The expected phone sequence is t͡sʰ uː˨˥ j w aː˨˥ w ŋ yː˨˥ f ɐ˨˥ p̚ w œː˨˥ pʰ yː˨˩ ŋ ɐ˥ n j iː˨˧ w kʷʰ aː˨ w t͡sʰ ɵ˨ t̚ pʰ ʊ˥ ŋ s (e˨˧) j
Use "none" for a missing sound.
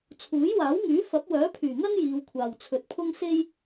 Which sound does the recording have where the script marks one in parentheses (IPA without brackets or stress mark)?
e˥